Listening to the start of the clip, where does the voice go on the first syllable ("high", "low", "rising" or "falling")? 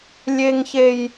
high